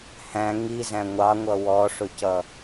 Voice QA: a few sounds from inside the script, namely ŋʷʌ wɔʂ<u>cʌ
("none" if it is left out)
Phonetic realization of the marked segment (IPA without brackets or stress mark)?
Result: ʊ